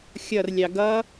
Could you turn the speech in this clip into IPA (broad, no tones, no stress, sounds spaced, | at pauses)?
xʲ ʌ r lʲ ɑ ɡ ʌ